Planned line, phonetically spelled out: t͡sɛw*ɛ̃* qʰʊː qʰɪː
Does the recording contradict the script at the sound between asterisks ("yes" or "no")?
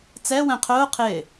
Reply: no